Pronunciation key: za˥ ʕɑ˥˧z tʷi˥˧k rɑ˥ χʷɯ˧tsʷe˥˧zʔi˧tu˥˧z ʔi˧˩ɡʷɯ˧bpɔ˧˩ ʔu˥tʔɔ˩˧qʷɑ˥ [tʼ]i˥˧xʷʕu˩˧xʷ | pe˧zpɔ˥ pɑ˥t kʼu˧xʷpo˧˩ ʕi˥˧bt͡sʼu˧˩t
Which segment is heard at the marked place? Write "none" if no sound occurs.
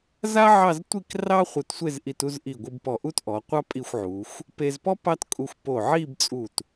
pʼ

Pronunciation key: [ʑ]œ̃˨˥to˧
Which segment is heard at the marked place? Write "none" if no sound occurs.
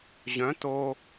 ʑ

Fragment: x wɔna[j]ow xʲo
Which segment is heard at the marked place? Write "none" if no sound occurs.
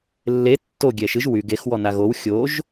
ɣ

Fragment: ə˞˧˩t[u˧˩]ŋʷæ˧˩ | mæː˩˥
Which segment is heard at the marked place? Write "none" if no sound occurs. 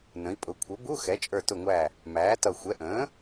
ʊ˧˩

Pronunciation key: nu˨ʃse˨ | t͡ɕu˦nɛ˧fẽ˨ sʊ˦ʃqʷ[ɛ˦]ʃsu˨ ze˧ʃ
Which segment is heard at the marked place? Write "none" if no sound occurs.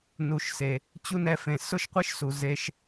ɪ˦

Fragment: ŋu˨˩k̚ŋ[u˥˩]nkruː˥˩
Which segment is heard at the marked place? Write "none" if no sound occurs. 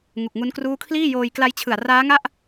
u˦˥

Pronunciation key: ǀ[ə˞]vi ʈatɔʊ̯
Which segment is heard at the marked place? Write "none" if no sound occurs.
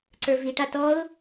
ə˞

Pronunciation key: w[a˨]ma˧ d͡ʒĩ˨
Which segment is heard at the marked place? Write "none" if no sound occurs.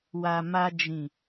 a˨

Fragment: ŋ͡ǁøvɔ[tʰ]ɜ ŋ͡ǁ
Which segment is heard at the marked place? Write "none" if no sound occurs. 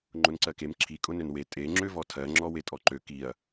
tʰ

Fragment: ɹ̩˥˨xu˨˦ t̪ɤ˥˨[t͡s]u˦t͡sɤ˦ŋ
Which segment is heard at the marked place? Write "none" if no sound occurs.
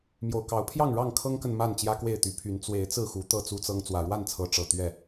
t͡s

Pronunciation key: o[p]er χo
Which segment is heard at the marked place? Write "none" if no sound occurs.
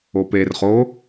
p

